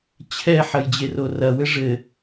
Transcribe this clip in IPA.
t͡ɕʰ ɛ ħ ɐ j d͡ʑ e r o r ɐ w ɘ ʐ ɘ

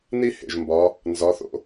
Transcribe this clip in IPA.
n i˥ h ḛ˩ ʒ m b ɒ˩˧ | n z ɒ˩˧ θ o̰˧

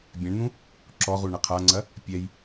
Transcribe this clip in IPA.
bʲ ɛ̃ ɳ n̪ ũ | ǁ ɔ ʁ u ɳ ɐ qʰ a ŋ͡ǀ ɐ | pʲ ɛ j

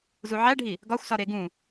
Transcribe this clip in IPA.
z u ʕ æ ɖʱ i | ɡ ɒ xʷ s ɒ ɾ e ɡ ũ

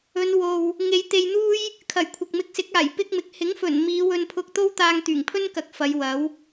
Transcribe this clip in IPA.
ɵ˨˧ n w o˧ w | ŋ e˨˧ j t̪ e˧ j n̪ uː˥ j | kʰ ɐ˨˩ j kʷʰ ɐ˨ k̚ m ɪ˧ k̚ s ɪ˨˥ k̚ aː˨˩ j p ɪ˥ k̚ m ɪ˨ k̚ h ɪ˨˥ ŋ f ɵ˨˩ n m iː˨˧ w ɵ˧ n pʰ ʊ˧ k̚ t̪ o˥ w t̪ aː˧ ŋ t̪ yː˨˩ ŋ pʰ ɵ˥ n k ɐ˨˥ k̚ f ɐ˨˧ j w ɐ˨˥ w

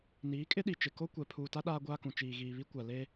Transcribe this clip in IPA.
n iː˨˦ kʼ ɪ˦ ɗ i˨ t͡ʃ ɪ˨ k o˦ kʷ ɛ˨ pʰ uː˨ t a˦ ɗ aː˦ ɡʷ aː˦ k ũ˨ t͡ʃ iː˨ ɣ iː˨ β i˦ kʷ a˨ l eː˦

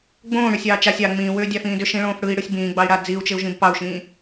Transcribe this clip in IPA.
ɡ͡b õː ɽ ʏ sʲ ɑː t͡ʃ a sʲ ɑ ŋ͡m ĩː w ʏː dʲ ɑ f ĩː d ʏ ʃ ĩ ɭ õː f ɽ ɯ i̯ ɽ ɯ sʲ b ĩː ɡ͡b ɑ i̯ ɽ a d͡z i u̯ t͡ʃ ɪ u̯ ʒ ĩ b p ɑ u̯ ʃ ĩː

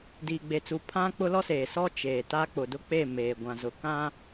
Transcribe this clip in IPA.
d iː˨ ɡ͡b e˨ t͡s u˨ pʰ ã˦ k͡p ʊ˦ l ɔ˦ s eː˨ s ɔ˦ t͡ʃ eː˨ t a˦ k͡p ʊ˨ d ʊ˦ k͡p e˦˨ m eː˨ ɡʷ ã˨ z ʊ˨ k ã˦

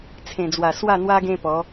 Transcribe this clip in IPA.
t͡sʰ ẽ˨˩ d͡z w a˨˩ s w a˥˧ n̪ w a˦ ɡ ẽ˦ p ɔ˨˦

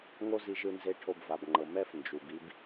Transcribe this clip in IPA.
ŋ o˦ z i˧ ʒ ɯ˧ n z e˧ ʈʰ o˧ b v a˨ b ŋ͡ǃ ɤ˨ m ɛ˦ f n d͡ʒ u˨ b i˦ b

